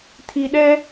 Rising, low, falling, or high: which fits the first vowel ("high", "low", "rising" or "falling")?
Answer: low